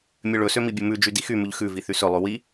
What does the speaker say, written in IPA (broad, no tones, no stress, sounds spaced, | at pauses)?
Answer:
mʲ ø ɭ ɵ s ø m i bʲ ɵ m ʉ d͡ʒ y d i x y m ʉ ʎ x ʉ v i θ y s ɵ lˠ ʉ w i